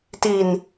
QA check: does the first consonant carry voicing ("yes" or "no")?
no